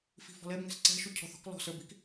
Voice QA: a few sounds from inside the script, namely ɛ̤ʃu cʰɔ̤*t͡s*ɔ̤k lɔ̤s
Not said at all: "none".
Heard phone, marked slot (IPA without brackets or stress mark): θ